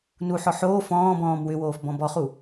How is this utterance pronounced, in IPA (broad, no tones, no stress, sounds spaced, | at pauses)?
n u ħ ɔ ħ oː f ɔ̃ː b ɔ̃ː m w ʏ w oː f b ɔ̃ b ɔ χ u